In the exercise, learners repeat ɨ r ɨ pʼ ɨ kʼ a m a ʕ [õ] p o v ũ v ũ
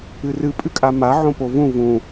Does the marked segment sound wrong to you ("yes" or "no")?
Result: no